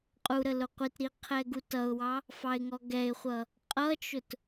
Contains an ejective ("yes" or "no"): yes